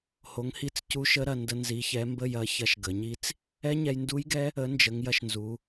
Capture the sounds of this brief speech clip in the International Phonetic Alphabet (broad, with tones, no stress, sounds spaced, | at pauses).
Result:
h o˨˥ ŋ h i˦˥ t͡s c u˦˥ ʃ ə˦˥ ɾ ɐ˧ n d ə˦˥ n z i˨˥ ç ɛ˨˥ m b ə˥˧ j ɐ˦˥ ç ɐ˧ ʃ ɡ ə˩˧ ɲ i˦˥ t͡s | ɛ˦˥ ɲ ɛ˧ j n d u˦˥ j ɡ ɛ˦˥ | ə˨˥ n d͡ʒ ə˩˧ ŋ j ɐ˧ ʃ n z u˩˧